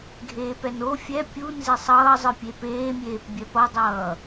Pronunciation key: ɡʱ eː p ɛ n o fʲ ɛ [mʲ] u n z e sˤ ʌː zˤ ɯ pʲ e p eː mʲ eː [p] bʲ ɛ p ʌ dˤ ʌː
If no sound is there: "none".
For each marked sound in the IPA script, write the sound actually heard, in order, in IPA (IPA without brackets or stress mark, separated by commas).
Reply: pʲ, p